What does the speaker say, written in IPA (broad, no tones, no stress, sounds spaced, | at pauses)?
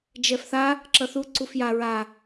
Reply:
d͡ʒ ɛ f θ a | ǁ ʌ θ u ǀ u f j a ɹ a